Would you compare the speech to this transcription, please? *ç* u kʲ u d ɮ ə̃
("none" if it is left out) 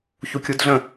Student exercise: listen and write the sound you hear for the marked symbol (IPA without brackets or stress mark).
ç